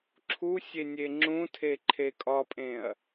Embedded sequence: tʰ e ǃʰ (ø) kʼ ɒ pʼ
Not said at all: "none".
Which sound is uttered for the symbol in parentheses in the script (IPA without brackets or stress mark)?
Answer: e